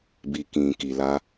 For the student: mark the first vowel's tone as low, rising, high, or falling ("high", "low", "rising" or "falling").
low